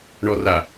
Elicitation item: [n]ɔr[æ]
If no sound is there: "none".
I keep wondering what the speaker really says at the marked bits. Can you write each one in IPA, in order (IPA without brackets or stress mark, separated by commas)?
ɳ, a